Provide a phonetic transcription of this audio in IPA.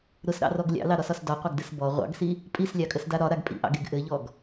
ɾ ʊ s ɾ ɑ̰ r ɔ ɡ lʲ ɑ̰ l ɑ ɾ ɒ s ɒ s d ɒ qʷ ɑ ɡ d ɘ s b ɔ ʁʷ ɑ̰ ɡ s i | pʼ i s lʲ ɑ kʼ ə s d a ɾ ɒ ɾ a ɡ pʼ ḭ ʔ ɑ̰ ɡ e ɡ ʔ ɘ ʎ ɔ ɡ

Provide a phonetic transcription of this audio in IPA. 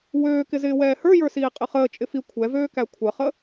w øː k ɪ z ɪː w ɛː h ə˞ j ə˞ s iː qʼ ɪ χ əː t͡ʃʼ ɪ f i kʷʰ ɛ v øː k æ kʷʰ ə χ ə

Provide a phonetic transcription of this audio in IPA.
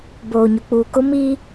b oː˨ ɲ ʊ˨ k͡p uː˨ k ʊ˦ m i˦

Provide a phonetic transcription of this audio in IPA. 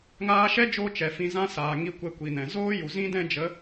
ŋ aː˧ ʃ ɛ˦ d͡ʒ oː˧ t͡ʃ ɛ˨ f ĩ˧ z ã˦ s aː˨ ŋ i˦ kʷ ɛ˦ kʷ i˨ n ɛ̃˨ z oː˦ j u˨ z ĩ˦ d ɛ̃˦ d͡ʒ ə˨˦

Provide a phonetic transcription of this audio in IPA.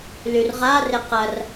l y r ʁ a r ɪ q ɐ r

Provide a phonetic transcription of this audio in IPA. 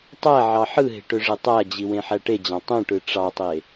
tˤ æ ʕ ɑ ħ ɯ ɦ e̤ ʈ ø ʐ e tˤ æ d͡ʑ i w ẽ ħ æ ʈ e d͡ʑ ɑ̃ tˤ ũ ʈ ɯ ʈ͡ʂ ɑ tˤ e

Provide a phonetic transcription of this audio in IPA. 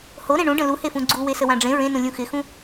h o ɾ ẽ ɳ ũ ɖ ə̃ l u h e f ũ ɡ͡ǀ u w e s ə w ã ɖ͡ʐ ẽ ɹ ẽ n ũ lʲ ũ x ɪ x ũ

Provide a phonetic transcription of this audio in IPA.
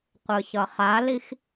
qʷ ɯ ç ʌ χ a l i x

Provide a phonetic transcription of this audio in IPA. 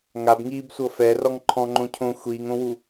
ŋ a b ŋ iː b sʷ ɤ f ɛ r ɔ ŋ ǃʰ ɔ̃ ŋ͡ǃ õ cʰ õ xʷ iː ŋ õ w u

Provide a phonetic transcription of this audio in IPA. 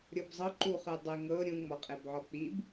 ɾʲ ɤ b zˤ ɤ ǃ u χ ɯ dˤ ɯ ŋ ɤ ɾʲ ũ ŋ͡m ɔ qʼ e b ʕ ɔ k͡p i b

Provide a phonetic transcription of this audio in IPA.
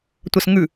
tʷ ɐ s ŋ ʉ

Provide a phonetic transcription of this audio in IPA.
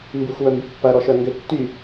m b y xʷ w œ m b y pː ɐ ɾ ɔ ʃ œ ŋ ɡ ʏ tː y

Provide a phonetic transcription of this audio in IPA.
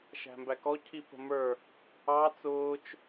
ʃ æ̤ m b æ k ɔ cʰ i p ə̤ m ə˞ | ɑ t͡s ʊː t͡ʃ

